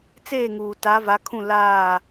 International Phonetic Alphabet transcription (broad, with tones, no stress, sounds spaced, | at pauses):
t͡s eː˦˨ ŋ uː˨ t a˨˦ v a˨˦ kʰ ũ˦˨ l aː˦˨